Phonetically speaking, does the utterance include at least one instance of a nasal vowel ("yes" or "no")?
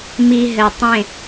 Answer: yes